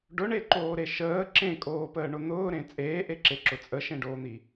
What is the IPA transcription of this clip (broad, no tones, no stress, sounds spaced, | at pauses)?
ɖ ʊ ɳ e ǃ oː ɾ e ʃ əː ǁ ẽ kʼ oː p əː ɳ ʊ n̪ ʊː ɾ ẽ t͡sʼ eː ʔ e ǁ e ǁ ʊ t͡sʼ ə ʃ ẽ ɖ oː n̪ i